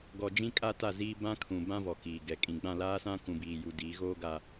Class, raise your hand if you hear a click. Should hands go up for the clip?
no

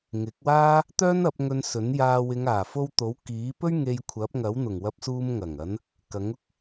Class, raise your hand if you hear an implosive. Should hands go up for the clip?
no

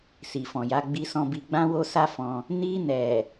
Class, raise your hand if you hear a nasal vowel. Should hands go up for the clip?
yes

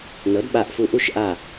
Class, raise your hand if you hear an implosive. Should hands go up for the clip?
yes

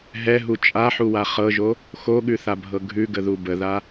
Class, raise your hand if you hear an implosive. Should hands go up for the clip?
yes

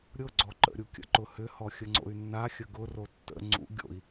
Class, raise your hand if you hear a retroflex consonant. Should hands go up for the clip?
no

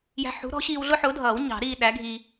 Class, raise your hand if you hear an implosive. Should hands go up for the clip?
yes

